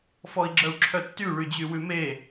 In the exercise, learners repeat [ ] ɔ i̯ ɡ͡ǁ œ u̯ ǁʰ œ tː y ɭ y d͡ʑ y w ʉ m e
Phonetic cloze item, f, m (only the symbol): f